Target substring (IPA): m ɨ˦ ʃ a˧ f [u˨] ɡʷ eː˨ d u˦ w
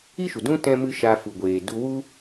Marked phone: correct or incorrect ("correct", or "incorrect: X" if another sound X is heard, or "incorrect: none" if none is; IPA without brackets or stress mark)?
correct